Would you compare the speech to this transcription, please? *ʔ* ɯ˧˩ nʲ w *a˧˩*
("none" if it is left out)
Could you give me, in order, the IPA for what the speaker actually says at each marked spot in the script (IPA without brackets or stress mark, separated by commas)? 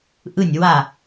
ʔ, a˧˩